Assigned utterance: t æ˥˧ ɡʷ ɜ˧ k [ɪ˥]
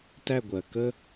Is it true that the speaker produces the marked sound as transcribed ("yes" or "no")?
no